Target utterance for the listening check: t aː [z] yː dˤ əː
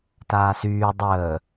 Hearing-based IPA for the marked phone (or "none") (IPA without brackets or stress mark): s